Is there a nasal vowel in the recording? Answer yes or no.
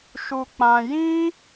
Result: yes